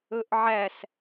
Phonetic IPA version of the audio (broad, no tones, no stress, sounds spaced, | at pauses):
ɵ ʔ ʕ æ s